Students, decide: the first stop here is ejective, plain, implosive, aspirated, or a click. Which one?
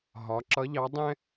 click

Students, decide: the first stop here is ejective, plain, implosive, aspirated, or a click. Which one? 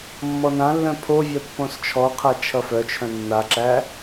aspirated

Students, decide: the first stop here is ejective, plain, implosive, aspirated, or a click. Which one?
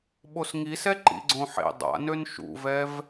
implosive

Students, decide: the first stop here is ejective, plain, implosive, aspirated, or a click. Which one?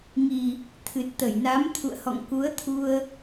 aspirated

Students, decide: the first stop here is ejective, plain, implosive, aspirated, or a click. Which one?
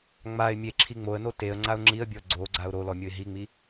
click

